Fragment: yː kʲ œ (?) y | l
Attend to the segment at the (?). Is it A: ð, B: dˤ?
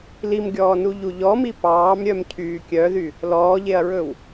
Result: A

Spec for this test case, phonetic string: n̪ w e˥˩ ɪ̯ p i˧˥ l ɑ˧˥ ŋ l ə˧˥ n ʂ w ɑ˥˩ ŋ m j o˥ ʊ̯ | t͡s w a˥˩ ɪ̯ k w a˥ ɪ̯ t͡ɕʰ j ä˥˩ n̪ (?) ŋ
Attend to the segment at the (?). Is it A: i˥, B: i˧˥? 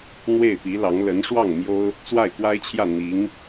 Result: B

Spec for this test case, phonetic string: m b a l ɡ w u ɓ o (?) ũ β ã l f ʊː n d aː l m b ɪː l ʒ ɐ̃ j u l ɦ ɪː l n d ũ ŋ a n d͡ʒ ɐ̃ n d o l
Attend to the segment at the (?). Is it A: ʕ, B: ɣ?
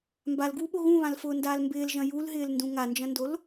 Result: B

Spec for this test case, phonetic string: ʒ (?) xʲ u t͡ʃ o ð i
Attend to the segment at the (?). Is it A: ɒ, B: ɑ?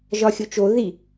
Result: A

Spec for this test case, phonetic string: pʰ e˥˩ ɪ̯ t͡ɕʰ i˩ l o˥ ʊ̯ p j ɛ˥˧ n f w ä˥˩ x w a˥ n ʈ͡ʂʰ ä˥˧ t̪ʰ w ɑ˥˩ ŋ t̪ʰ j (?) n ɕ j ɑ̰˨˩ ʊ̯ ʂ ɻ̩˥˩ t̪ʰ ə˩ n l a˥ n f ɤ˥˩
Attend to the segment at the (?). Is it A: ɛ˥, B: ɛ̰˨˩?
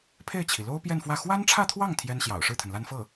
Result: A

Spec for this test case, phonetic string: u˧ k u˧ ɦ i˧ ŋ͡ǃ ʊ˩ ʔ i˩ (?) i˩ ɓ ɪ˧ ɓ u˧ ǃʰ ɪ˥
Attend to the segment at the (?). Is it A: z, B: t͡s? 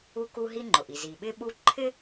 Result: A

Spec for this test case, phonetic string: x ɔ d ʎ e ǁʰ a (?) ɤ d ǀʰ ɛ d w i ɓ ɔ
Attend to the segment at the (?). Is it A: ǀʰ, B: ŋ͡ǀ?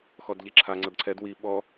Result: B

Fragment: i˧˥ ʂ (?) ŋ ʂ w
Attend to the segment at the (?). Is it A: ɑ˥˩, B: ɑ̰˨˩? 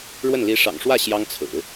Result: B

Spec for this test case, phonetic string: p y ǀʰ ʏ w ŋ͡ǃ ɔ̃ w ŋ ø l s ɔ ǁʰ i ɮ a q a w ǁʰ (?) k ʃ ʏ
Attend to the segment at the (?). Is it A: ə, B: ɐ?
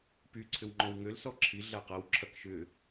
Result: B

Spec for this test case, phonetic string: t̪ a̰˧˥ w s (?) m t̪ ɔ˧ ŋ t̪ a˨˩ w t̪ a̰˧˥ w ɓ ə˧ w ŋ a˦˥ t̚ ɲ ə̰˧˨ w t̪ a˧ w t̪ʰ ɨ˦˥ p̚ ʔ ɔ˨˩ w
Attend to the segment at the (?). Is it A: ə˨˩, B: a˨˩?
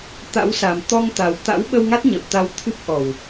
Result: B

